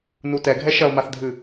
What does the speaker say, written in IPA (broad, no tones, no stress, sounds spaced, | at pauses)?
n u t ɛ ɡʱ ɛ ʃ ɐ o̯ m a θ dʱ ɨ